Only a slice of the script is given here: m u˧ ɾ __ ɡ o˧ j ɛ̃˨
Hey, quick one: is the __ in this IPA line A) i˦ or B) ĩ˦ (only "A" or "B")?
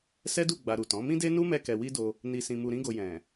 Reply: B